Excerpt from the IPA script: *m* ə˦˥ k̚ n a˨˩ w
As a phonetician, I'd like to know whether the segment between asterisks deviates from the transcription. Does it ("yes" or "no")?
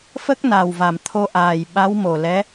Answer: yes